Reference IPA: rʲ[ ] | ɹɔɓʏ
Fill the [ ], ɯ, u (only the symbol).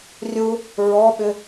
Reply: u